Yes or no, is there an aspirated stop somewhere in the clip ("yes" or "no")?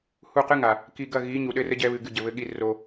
no